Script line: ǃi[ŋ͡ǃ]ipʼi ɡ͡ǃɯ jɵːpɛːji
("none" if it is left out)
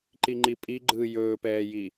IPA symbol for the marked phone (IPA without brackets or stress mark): ŋ͡ǃ